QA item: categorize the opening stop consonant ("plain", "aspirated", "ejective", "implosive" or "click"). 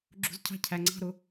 click